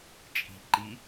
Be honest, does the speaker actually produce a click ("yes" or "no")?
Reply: yes